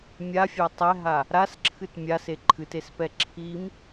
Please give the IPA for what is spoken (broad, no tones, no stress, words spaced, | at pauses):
mʲafʲa tˤɛɦa | ɾasǁʰɨt mʲase ǃʰɨtespɛ ǁʰim